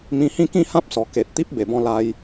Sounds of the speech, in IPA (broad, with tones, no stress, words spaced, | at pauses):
mĩ˧hĩ˥˧ kĩ˥˧hã˦p̚sɔ˨˩ ke˨t̚ t̪i˦p̚be˨˩bɔ̃˧ la˧j